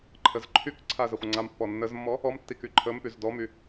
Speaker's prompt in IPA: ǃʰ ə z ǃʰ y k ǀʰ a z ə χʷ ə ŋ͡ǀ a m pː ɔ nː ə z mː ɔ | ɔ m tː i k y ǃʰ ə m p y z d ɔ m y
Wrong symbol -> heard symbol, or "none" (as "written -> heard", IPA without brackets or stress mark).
none